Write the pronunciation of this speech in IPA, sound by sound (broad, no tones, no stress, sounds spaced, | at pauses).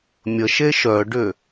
mʲ ə ʃ e ʃ œ ɖ ʏ